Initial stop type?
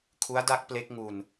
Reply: aspirated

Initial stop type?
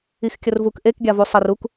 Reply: plain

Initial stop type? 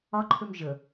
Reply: click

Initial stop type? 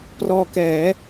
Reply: plain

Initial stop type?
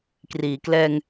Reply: plain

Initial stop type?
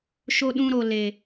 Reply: implosive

